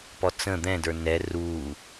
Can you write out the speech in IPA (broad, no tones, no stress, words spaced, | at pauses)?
pɔt͡sə̃ d̪ɛ̃də˞ nɛ ruː